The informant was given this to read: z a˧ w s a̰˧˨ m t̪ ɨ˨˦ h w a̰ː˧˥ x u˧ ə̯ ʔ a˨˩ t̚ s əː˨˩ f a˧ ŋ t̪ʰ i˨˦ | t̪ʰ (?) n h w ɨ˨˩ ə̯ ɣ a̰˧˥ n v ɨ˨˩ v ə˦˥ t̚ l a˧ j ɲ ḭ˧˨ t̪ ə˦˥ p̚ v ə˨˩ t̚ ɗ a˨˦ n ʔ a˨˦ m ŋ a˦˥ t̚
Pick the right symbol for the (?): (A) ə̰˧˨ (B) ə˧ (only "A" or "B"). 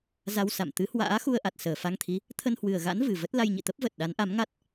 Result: B